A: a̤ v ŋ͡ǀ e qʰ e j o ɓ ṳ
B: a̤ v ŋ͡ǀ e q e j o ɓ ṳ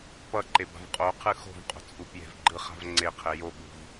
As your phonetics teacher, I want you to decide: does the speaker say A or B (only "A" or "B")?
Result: A